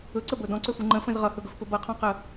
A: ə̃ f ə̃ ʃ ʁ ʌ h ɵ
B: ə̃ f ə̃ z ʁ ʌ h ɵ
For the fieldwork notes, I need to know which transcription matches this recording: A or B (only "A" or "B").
B